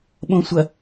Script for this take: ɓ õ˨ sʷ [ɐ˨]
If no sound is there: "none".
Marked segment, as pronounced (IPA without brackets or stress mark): ɐ˨